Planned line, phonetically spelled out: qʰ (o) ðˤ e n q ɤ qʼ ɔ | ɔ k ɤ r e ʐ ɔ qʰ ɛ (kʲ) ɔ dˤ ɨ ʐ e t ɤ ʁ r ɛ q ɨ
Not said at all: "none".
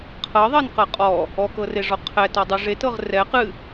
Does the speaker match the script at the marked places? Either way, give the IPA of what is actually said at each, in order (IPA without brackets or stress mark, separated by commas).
ɤ, t